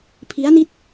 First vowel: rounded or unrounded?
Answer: unrounded